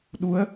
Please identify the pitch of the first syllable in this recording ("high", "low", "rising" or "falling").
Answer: rising